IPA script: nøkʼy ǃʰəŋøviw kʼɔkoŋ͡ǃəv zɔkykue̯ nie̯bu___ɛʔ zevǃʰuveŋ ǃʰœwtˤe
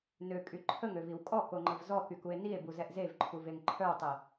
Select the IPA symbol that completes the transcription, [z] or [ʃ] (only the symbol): z